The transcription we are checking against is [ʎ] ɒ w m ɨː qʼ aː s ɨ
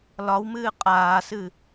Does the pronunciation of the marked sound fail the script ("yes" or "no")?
yes